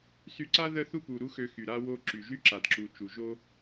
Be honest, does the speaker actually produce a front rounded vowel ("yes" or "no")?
yes